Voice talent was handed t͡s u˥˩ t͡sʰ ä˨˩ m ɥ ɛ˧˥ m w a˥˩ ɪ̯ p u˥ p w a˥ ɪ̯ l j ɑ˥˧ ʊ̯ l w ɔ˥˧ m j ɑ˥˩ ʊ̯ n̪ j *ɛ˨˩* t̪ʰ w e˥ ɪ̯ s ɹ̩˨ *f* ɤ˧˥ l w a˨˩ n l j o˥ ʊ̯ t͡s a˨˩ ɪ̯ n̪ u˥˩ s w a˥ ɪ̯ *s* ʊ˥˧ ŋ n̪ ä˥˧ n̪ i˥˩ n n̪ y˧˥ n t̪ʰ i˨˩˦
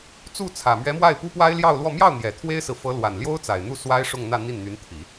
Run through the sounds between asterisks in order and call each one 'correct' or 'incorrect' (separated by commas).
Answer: correct, correct, incorrect